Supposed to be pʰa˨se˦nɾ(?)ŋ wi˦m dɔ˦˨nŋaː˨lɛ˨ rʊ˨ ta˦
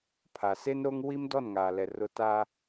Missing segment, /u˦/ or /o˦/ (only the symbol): o˦